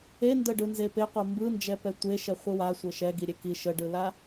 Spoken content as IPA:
endəɖɯnze peqʷə mbɯnd͡ʒɛpɛ tʷeʃɛχʷɯ wasʷə ʃɛɡiɾʲe ki ʃəɖɯla

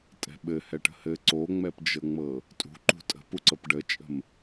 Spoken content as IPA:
tʼɛ̤ɓɘ hɛʈə̤hɘ ǀoŋ͡mɛpd͡ʒɤŋ͡mɤ | tʼṳ ǃṳtʼə̤puǀɤp ɖət͡ʃʼə̤m

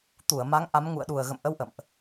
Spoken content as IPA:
t̪u˧˩ə̯ ma˨˦ŋʔa˨˦mŋṵ˧˨ə̯ ɗu˨˩ə̯ɣə̰˧˨mʔə˧w ʔə̰˧˨mʔ

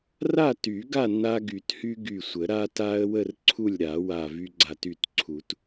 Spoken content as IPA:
ra˥˨ty˨˩˦ ɡa˥˨nːa˧ ɡy˨˩˦thy˧ ɡy˧˩sʷə˨˩˦ ɾa˧ta˧ə̯ wə˥˨r ǀʰu˥˨lʲɾa˨˩˦ wa˧˩ vy˧ɡ͡ǀa˧˩ty˧˩tǀʰu˨˩˦t

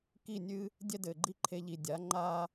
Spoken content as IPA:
ki˦˨nʲɨ˦ | dʲɛ˦dɘ˨ɡ͡ǃi˦ ǃʰe˧ʎi˨dʲa˨˦ ŋ͡ǃa˦

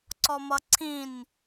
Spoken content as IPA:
ǀɔmʌǀʰĩn

